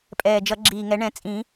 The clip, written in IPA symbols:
pʼ ɛː˨˩ d͡ʒ ʌ˨˩˦ ɡ͡ǁ iː˨˩ ŋ ɛ˨˩˦ ɳ ɛ̃˨˩˦ t͡sʼ ĩ˨˩˦

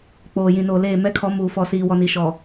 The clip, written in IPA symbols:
k͡p oː˨ j ĩ˨ n oː˨ l eː˦˨ m ɛ˦ kʰ ɔ˨˦ m uː˨ f ɔ˨ s iː˨ w ɔ˨ n i˨ ʃ ɔ˨

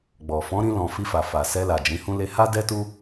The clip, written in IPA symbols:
ɡ͡b ɔ˨ f ɔ̃˨˦ ɾ ĩ˧ l ɔ̃˨ f i˧ f a˨ f a˨ s ɛ˧ l a˨ d͡ʒ ĩ˨˦ h ũ˦ l e˧ h a˦ d ɛ˦ t u˦

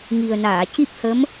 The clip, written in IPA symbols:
ŋ i˨˩ ə̯ n aː˨˩˨ c i˦˥ p̚ h ə˧˥ m

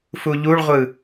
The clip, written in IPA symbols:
f u ʎ u ɭ ʁʷ ɯ

